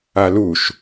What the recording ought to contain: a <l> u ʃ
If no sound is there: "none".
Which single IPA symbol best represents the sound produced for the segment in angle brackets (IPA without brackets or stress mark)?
l